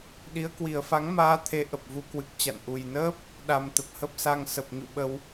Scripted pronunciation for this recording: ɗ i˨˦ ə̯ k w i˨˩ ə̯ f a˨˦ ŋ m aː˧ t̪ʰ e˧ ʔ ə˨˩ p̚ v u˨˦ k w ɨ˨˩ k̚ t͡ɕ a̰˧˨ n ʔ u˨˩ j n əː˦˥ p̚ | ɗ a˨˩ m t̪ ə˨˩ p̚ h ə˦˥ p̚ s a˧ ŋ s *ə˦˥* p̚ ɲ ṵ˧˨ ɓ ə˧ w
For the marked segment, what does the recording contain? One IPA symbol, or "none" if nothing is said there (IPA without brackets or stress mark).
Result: ə˨˩